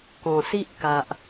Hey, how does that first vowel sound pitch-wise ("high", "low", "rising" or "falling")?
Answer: low